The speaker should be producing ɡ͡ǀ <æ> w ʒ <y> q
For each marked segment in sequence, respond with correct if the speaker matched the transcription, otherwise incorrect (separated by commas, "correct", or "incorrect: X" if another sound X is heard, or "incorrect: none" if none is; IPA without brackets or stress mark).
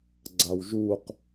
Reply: incorrect: a, incorrect: u